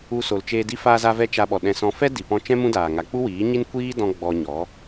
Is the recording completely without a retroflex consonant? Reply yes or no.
yes